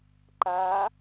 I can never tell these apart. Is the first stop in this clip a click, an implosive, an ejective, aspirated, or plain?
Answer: click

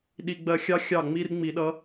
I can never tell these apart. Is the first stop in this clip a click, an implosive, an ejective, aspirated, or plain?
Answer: implosive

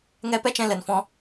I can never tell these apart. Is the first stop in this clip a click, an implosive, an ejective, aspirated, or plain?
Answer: plain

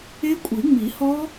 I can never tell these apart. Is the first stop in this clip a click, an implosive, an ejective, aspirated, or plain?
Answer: ejective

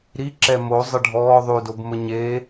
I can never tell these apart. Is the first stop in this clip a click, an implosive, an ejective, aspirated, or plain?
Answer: click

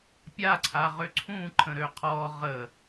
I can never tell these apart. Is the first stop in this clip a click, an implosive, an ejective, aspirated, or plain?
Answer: plain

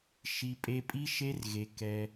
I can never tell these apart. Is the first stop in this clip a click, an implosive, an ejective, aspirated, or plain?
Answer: ejective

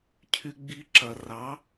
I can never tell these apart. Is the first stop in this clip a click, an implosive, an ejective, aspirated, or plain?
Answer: aspirated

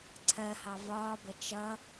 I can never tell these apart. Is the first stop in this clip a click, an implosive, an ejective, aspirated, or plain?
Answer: click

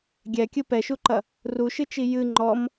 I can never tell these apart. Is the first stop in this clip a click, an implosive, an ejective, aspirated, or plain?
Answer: plain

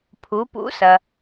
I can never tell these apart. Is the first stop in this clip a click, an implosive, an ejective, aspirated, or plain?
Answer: aspirated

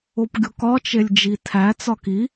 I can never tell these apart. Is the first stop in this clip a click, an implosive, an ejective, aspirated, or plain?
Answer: plain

